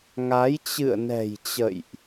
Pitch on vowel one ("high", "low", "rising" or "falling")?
rising